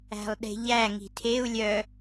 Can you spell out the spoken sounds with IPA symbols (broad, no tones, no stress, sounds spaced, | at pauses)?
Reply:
æ̤ lˠ ɗ e̤ ʎ æ ŋ i̤ tʰ e u̯ lʲ œ